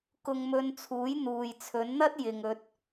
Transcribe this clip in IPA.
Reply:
k ʊ˧ ŋ m ɵ˧ n t͡sʰ uː˨˥ j n̪ uː˨ j t͡sʰ ɵ˨˥ n n̪ ɐ˥ t̚ j ɪ˨ ŋ ɵ˨ t̚

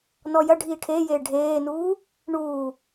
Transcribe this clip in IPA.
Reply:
n ɔ j ɐ ɖʱ iː ʈʰ eː j eː ɖʱ eː n uː | ɳ uː

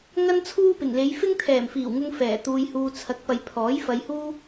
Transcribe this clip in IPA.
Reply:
ŋ ɐ˥ n t͡sʰ uː˥ p ɪ˨˩ ŋ l e˨˧ j f ɪ˥ ŋ t̪ʰ ɛː˨˩ m f iː˨˩ w ŋ ʊ˧ ŋ f ɛː˨˩ t̪ uː˧ j h uː˧ t͡sʰ ɐ˨˥ k̚ p ɐ˨ j pʰ ɔː˨˥ j f ɐ˧ j h uː˥

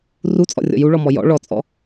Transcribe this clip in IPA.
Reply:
r u t͡sʼ ɔ̰ rʲ ɔ̰ j u ɭ ɔ m ɔ j ɔ̰ ɭ ɔ t͡sʼ ɔ̰

